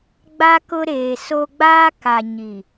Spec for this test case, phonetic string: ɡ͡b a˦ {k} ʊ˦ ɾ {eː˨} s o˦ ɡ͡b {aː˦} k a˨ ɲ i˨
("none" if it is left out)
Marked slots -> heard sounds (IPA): k, eː˨, aː˦

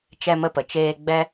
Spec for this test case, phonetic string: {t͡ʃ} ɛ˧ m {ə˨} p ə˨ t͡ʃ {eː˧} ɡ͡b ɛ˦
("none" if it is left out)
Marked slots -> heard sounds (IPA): t͡ʃ, ə˧, eː˧

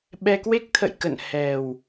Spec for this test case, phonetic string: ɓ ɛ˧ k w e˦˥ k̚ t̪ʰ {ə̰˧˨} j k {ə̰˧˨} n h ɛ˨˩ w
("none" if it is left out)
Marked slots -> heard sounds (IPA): ə̰˧˨, ə̰˧˨

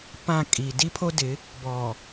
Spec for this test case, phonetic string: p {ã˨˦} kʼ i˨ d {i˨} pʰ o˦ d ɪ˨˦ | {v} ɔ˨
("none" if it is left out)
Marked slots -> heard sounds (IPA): ã˦˨, i˦, b

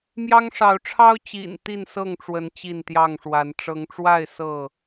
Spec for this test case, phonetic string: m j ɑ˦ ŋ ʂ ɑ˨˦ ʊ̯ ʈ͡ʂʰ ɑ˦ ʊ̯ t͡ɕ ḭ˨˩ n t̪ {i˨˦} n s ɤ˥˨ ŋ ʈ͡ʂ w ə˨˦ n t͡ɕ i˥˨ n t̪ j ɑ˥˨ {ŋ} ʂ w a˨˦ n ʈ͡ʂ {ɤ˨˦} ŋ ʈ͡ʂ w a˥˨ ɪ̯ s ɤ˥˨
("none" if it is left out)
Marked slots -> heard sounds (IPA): i˥˨, ŋ, ɤ˨˦

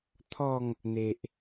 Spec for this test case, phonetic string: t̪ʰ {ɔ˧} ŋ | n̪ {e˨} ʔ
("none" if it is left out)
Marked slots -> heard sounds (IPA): ɔ˥˧, e˨

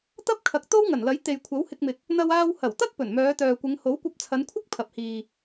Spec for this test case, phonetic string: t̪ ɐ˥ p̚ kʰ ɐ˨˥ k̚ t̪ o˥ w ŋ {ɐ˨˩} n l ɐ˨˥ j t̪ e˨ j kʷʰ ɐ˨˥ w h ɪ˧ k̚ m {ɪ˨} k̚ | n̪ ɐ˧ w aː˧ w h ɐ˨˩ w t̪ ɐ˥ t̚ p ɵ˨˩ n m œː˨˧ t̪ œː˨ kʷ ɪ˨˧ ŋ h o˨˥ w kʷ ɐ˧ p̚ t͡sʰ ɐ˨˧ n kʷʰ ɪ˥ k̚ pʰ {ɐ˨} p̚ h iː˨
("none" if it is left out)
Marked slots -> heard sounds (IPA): ɐ˨˩, ɪ˨, ɐ˨

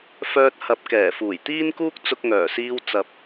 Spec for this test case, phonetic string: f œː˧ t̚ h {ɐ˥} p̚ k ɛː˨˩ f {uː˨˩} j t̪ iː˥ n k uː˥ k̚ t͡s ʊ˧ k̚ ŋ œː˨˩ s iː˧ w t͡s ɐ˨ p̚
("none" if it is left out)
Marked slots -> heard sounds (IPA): ɐ˨, uː˨˩

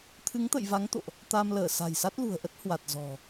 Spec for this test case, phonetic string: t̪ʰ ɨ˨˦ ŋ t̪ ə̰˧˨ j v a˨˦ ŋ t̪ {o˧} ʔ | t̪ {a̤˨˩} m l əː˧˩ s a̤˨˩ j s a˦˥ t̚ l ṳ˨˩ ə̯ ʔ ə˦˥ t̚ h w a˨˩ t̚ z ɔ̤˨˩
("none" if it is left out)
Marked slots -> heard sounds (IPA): o̰˧˨, a˧

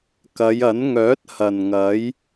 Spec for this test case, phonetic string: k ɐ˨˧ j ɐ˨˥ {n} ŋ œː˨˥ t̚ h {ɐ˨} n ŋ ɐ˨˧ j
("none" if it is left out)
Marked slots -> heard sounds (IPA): n, ɐ˨

